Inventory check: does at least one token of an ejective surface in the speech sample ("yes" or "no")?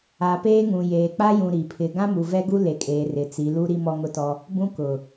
yes